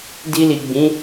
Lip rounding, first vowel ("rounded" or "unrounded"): unrounded